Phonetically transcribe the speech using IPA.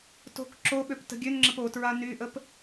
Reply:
to̤k ǁoɓøp tə̤ɡʲønŋ͡ǁəp otɹa nyʔəp

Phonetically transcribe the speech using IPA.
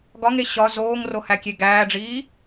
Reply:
ɡɒŋe ɕɒ zoːŋro hækʲeɡæːɖ͡ʐiː

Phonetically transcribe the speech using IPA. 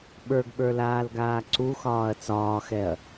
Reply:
ɓə˞ɡɓə˞laːlɡaː ǀuxɒːɐ̯ t͡sɒːxɛɐ̯

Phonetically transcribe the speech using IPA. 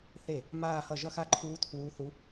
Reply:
θe˥˩ | maː˥˧hʌ˥˩ ʒʌ˥˧xa˥˩ǃʰuː˧˥ tʰuː˧˥θu˧˥

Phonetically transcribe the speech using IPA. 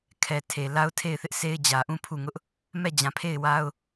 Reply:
kʰɛ˨tʰe˨ la˦ʊ̯tʰe˦˨ɪ̯θɪ˦ʔsʰe˦ɪ̯ d͡ʑä˨ʔũ˦˨ pʰu˦˨ŋʊ˦ʔ | mɛ˦˨d͡ʑã˨ pʰe˦˨ɪ̯wa˦ʊ̯

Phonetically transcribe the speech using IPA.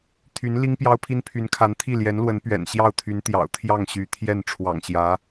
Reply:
t̪ʰy˧˥n li˥ŋpjɑ˥ʊ̯pʰi˥n pʰy˧˥nkʰa˧˥nt̪ʰi˥˩ ljɛ˧˥nlwə˧˥n pɥɛ̰˨˩nɕjɑ˥˩ʊ̯t̪ʰy˧˥nt̪jɑ̰˨˩ʊ̯ t̪ʰjɑ˥˩ŋɕy˧˥t̪ʰjɛ˥˩n ʈ͡ʂʰwɑ̰˨˩ŋɕjä˧˥

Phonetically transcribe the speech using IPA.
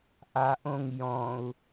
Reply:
ʔaʔõŋ jɔ̃u̯

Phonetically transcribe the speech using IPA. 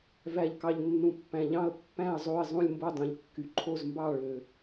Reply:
væ˩ʎkɑ˩ʎ nːũ˩pːæ̃˩ʎɑ̃˦˨ə̯ pːæ̃˦˨ə̯zˤo˦˨ɪ̯ zˤũ˦˨lʲmbo˦˨dˤũ˩ʎkːy˩ ǃʰo˦˨zmbɑ˦˨ ɭø˩

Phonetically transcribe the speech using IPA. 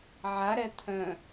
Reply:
ʕa ɾɛt̪ʰœ̃

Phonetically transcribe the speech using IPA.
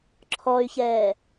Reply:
ǁʰɔy̯çɛː

